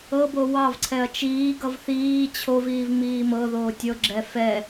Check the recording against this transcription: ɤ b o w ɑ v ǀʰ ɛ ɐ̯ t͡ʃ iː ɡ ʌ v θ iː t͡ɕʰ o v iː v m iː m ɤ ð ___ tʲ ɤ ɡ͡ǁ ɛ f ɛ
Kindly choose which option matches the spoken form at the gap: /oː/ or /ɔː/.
oː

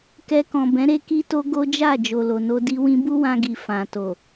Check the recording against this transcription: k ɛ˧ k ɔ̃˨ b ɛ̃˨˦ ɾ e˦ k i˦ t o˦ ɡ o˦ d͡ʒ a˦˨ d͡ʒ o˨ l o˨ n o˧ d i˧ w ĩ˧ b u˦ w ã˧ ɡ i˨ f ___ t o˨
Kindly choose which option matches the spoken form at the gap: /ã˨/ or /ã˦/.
ã˨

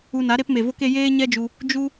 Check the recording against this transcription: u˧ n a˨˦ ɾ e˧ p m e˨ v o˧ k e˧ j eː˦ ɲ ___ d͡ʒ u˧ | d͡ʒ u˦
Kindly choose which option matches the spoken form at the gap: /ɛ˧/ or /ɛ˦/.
ɛ˦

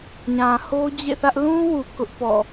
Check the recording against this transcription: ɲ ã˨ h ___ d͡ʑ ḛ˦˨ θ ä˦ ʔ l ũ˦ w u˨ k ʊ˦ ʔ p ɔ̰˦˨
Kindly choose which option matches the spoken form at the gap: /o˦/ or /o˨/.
o˦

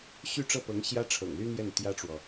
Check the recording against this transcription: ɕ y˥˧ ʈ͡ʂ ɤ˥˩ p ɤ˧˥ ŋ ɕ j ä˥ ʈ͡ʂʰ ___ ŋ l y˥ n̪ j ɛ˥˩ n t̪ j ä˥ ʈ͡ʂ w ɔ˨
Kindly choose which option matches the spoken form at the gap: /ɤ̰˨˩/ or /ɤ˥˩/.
ɤ̰˨˩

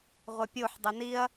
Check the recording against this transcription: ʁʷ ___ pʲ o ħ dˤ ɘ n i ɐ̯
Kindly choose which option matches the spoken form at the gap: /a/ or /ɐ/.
ɐ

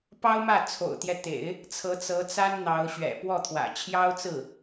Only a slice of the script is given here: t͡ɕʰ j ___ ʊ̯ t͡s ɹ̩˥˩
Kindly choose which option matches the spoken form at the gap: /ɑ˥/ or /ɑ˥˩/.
ɑ˥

